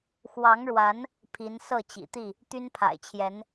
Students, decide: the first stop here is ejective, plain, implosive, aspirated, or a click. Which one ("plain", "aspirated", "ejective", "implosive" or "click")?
aspirated